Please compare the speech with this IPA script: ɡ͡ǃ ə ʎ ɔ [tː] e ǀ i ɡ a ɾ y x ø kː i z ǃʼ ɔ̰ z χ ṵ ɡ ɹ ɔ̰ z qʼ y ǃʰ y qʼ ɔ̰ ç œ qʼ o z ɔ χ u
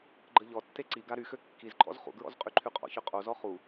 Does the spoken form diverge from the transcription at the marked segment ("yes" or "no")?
no